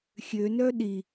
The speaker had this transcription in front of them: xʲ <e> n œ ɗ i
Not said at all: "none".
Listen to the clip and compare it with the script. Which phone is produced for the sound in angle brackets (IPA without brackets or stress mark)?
ø